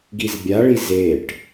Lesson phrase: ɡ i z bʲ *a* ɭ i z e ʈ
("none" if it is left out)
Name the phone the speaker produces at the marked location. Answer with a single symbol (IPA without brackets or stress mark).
a